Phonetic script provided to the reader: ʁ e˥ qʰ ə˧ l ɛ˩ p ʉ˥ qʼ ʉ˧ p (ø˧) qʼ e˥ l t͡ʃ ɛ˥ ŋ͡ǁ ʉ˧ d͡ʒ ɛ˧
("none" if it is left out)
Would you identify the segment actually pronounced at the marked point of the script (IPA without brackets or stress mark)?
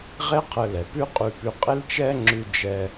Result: ʉ˧